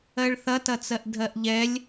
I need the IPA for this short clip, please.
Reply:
ɜ ɭ θ ɐ t ɐ t͡s ɜ ʔ dʱ ɜ ʔ ʎ ɛ lʲ

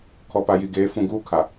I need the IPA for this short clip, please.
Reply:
kʰ ɔ˨ p a˨ j i˨ ɡ eː˨˦ f ũ˨ ɡ uː˦ kʰ a˨

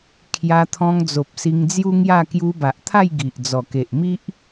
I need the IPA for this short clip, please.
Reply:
kʰ j a˧ t̪ʰ ɔ̃˧ ŋ d͡z o˨ p̚ s i˧ ŋ d͡z j u˦ ŋ j a˥˧ k j u˧ b a˨ ʔ t̪ʰ a˥˧ j ɡ i˨ ʔ d͡z ɔ˨˩ k e˨ ʔ m i˦ ʔ

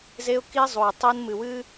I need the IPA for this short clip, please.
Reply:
z e˦ ʊ̯ k i˦ zˤ u˨ ɪ̯ tˤ i˦ n m ɨ˨ w ɨ˦

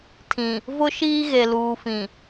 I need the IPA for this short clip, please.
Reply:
tʰ ĩ˨ | v ʊ˦ ʃ iː˦ ɣ e˨ l uː˨ f ĩ˨

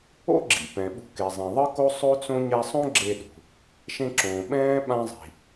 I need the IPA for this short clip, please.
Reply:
o̰˥ ɡ͡ǁ ḭ˩ p ɛ̃˩ ɓ ṳ˧ k e˩ zˤ ĩ˩ ðˤ ɯ˥ k o˥ sˤ o˥ t͡s õ˥ ɲ ɛ˧ sˤ õ˥ ɡ͡ǁ e˧ ɗ ṳ˩ | ʃ ẽ˧ ǁ õː˩ ɓ ɛ̃ː˥ ɓ ã˥ zˤ i̤˩

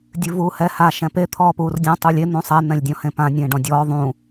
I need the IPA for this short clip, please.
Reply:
dʲ ʉ v uː h ɛ h a ʃ ɛ̃ p e t̪ʰ ɔː p uː r dʲ ɔ̃ tˤ u lʲ e n̪ ũ sˤ ɛ n̪ ɛ̃ lʲ dʲ ɔ̃ h ẽ p ã nʲ ẽː ɖ ɔ̃ dʲ ɔː ðˤ ũ

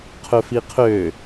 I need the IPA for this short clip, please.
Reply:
qʰ ɵ f i qʰ ø

